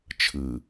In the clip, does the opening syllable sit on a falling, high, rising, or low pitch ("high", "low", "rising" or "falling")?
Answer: low